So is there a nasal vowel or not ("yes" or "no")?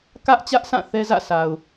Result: yes